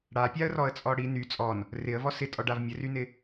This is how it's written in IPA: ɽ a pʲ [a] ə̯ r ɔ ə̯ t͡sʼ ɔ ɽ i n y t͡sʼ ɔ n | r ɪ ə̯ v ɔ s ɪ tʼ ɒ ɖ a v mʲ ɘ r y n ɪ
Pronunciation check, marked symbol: correct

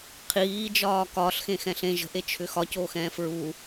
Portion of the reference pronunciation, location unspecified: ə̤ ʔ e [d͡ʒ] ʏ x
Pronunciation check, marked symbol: incorrect: t͡ʃʰ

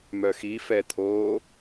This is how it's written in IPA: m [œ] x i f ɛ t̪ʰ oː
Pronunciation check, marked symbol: correct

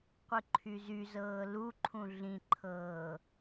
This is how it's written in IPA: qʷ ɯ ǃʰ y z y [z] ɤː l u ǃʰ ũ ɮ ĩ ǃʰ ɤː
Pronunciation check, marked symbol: correct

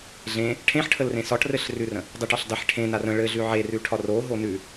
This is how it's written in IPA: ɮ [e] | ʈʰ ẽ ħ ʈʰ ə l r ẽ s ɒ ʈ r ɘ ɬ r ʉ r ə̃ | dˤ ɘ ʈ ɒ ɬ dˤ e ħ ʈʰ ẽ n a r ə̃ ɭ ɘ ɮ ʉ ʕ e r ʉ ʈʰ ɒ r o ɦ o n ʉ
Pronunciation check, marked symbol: incorrect: ẽ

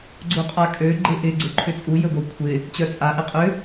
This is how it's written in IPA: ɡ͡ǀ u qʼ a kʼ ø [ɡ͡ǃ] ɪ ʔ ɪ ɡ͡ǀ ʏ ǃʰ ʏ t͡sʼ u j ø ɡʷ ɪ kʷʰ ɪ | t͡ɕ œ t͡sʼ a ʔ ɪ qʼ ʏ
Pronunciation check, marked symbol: correct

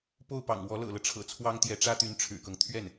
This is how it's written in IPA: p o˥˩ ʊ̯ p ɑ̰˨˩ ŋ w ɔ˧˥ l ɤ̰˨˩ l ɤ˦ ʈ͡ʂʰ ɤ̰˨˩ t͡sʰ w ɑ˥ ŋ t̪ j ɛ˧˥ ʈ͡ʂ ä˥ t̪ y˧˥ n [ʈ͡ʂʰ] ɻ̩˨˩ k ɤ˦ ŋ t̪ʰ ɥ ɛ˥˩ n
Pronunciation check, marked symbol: correct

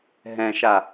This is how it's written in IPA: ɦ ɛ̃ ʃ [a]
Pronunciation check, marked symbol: correct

